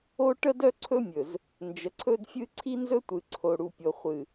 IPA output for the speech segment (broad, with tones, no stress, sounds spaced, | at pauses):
o˦ ʈ ə˦ d œ˦ ǀʰ ɵ˦ mʲ ɵ˨ z | n d͡ʒ ə˨ ǀʰ ɵ˦ d fʲ ɨ˦ ǀʰ i˦ n z ɵ˦ tʷ ɨ˨ ǀʰ o˨ ɽ u˨ pʲ o˨ χʷ ɨ˨